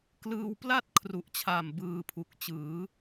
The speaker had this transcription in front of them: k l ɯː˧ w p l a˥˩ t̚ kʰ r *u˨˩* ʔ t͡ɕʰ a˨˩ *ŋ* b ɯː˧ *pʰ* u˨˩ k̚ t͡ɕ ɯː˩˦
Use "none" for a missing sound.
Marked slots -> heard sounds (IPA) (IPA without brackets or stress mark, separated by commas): u˨˩, m, pʰ